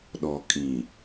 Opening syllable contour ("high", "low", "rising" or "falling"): low